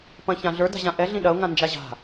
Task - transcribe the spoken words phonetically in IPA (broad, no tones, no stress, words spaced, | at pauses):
pɐ̃çãɮə˞ da̤ʑãʔɛ ɮĩɗɐʊ̯ ŋãnd͡ʒaʑa̤